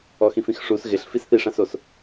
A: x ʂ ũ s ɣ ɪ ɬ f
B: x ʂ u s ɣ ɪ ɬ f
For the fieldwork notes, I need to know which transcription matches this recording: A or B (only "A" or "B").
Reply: B